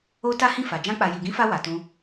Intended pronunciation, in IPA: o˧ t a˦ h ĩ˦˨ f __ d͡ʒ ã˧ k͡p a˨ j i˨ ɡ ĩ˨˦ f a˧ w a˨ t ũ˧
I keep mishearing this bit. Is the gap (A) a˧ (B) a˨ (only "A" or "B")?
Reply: B